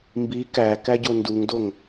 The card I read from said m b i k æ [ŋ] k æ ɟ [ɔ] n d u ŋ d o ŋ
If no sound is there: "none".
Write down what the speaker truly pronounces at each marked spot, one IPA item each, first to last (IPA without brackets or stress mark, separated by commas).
none, o